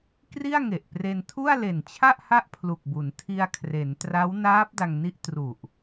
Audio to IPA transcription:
kri˥˩a̯ŋe˨˩ʔpre˧n tʰu˥˩a̯le˨˩nt͡ɕʰa˥˩ʔ ha˥˩ʔpʰlu˨˩k̚bu˩˦n tʰi˧a̯kʰre˩˦n tra˦˥wnaː˦˥p̚ da˧ŋni˥˩ʔ tru˨˩ʔ

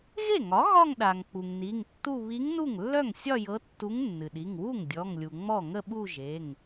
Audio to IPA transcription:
ɣe˥˩ŋɒ˩˥ ɣɒ˥˧ŋɗa˩ŋ k͡pu˩ŋni˩˧˩ŋtːu˥˧ βi˧˥ŋnu˥˩ŋlːœ˥˩ŋsʲɒ˥˧ jɤ˧˥tːu˧˥ŋnːɨ˩ɗi˩˧˩ŋ wu˥˩ŋ dʲɔ˩˧˩ŋlʲu˩ŋ͡mɔ˥˩ ŋə˥˧ɓu˥˧ʒe˩˧˩ŋ

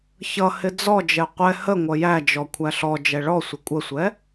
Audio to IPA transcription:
çʌhɪ d͡zɔd͡ʒɛ qʷɛ hə ŋʷʌjæd͡ʒɔ kʷʰæɬɔd͡ʒɛ ɭɔ sʷɪkʷʼəsʷɛ

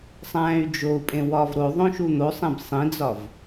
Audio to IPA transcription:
sˤæ̃ːy̯d͡ʒou̯pʼẽ wɒːvɾoðˤõ ʃun̪osˤẽb sˤĩd͡zɒv

